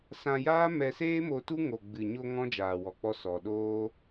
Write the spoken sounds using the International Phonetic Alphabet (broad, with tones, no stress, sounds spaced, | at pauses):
s ã˧ j aː˦ m ɛ˧ s eː˦ m o˧ t u˦ ŋ o˨ ɡ͡b ɨ˨ ɲ o˧ ŋ ɔ̃˦ d͡ʒ aː˨ w ɔ˨ k͡p ɔ˧ s ɔ˨ ɗ oː˦